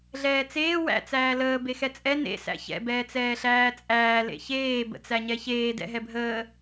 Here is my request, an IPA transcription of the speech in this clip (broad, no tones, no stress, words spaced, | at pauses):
ɮɛːt͡seː wæ̰ t͡sæːləː bexɛt͡sʼɛ nḛ sæ̰çɛ̰ bɛːt͡sɛːɬæːt͡sʼæː lḛçeː bə̰t͡sæɲɛçeː dɛ̰ɦɛbʱəː